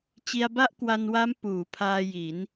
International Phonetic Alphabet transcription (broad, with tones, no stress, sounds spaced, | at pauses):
t͡ɕ i˧ a̯ b a˥˩ ʔ k w a˧ n w a˦˥ m p uː˩˦ pʰ aː˧ j i˩˦ n